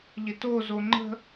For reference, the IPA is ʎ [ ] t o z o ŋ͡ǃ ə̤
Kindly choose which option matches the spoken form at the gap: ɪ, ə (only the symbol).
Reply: ɪ